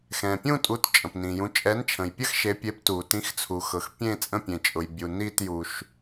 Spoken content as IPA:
x ɛ̃˩ pʲ ũ˥˧ tʼ u˨˦ t t͡ʃʼ ə̃˩ p n ĩ˩ j ũ˨˦ t͡ʃʼ ɛ˨˦ n t͡ʃʰ ə̃˩ j pʲ ə˥˧ x ʃ e˨˦ pʲ e˨˦ p t u˩ t ĩ˨˦ x t͡sʰ u˩ x ɤ˩ x pʲ ẽ˥˧ t͡sʼ ə̃˥˧ pʲ ẽ˩ t͡ʃʼ ʊ˩ j bʲ u˩ n i˥˧ t j u˩ ʃ

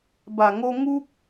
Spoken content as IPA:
b a˨˩ ŋ o˧ ŋ u˦ k̚

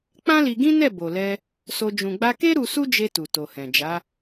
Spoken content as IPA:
k͡p ã˦ l i˧ ɡ ĩ˦ n ɛ˦˨ b o˨ l ɛ˧ | s o˧ d͡ʒ ũ˨ ɡ͡b a˧ k e˦ ɾ u˧ s u˦ d͡ʒ e˧ t u˨ t o˨ h ɛ̃˨ d͡ʒ a˨˦

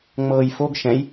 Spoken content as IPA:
ŋ͡m ɤː j f o ɡ ʃ ɛ̃ j

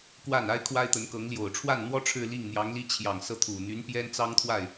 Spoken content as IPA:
k w a˥˩ n a˥ ɪ̯ kʰ w a˥ ɪ̯ t̪ ə˧˥ n k ɤ˧˥ ŋ l j o˨˩ ʊ̯ ʈ͡ʂʰ w a˥˩ n n̪ w ɔ˥ ʈ͡ʂʰ ɻ̩˥˧ l i˥˩ ŋ n̪ j ɑ˧˥ ŋ l i˥ t͡ɕʰ j ɑ˨˩ ŋ s ɤ˥˩ t̪ʰ u˨˩ n̪ y˧˥ n p j ɛ˥ n t͡s ɑ˥ ŋ t̪ʰ w a˥˩ ɪ̯

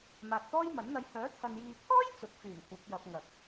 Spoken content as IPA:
m aː˨ t̚ t̪ ɔː˥ j m ɐ˨˥ n n̪ ɐ˧ j h œː˨˥ t̪ʰ ɐ˨ n j iː˨ pʰ ɔː˥ j t͡s ʊ˨˥ k̚ f yː˨˩ m kʷ ɐ˨˥ p̚ j ɐ˧ p̚ ŋ ɐ˨ k̚

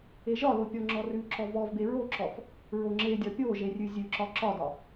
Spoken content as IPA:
e ʒ ɒ l o pʲ ɔ ŋ͡ǁ ɔ r ʉ ǁ ɔ v ɔ v b e ɹ o ǁ ɔ f | ɹ o ŋ͡ǁ e dʲ ɒ pʲ o ʒ e rʲ ʉ zʲ ʉ ǁ ɒ ǁ ɒ d ɒ

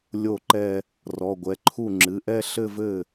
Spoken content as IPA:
lʲ o˥˩ ǃ ɛ˥˧ | r ɔ˩˧˩ ɡʷ ɛ˩˧˩ ǃʰ u˥˩ ŋ͡ǁ ɨ˩˧˩ ʔ ɛ˥˧ ɬ ɘ˥˧ v ɘ˥˩

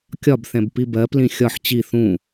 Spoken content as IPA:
kʲ ɒ b θ ɛ̃ b p i b ɜ p l ĩ xʲ ɒ ħ t͡ɕ i θ ũ

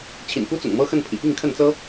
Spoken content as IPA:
t͡ɕʰ ḭ˨˩ n k u˦ t͡s ʊ̰˨˩ ŋ m ɤ˦ x ə˥˨ n pʰ ḭ˨˩ p i˥˨ ŋ kʰ ə˥˨ n t͡s ɤ˦

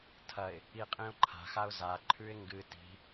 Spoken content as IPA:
tʰ ɐ ɪ̯ | i qʼ ĩ ʊ̯ ǃʰ a̤ x a ʊ̯ z a ǃʰ ʉ ɪ̯ ŋ ɡ ɨ t i̤

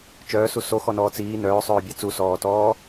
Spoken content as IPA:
t͡ʃ œː s u s o x ɔ n ɔː t͡s iː n œː sˤ œː bʲ a t͡s u s ɔː t ɔː

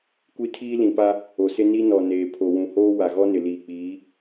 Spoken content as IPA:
kʷ i˦ tʰ iː˦ l ĩ˨ p a˦ | o˨ s ɪ˦ n i˦ n ɔ˨ n eː˨ pʰ o˨ w ũ˨ h oː˦ w a˨ ɣ ɔ˦ n ɪ˨ l iː˨ k͡p iː˨˦

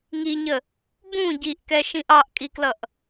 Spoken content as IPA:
ŋ i ɲ ə | b ũ ɟ i ʔ k ɛ ʃ ĩ ʔ ɑ ʔ kʼ i k l ʌ ʔ

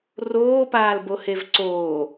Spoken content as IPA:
r oː p aː l b o h e v ǀ oː

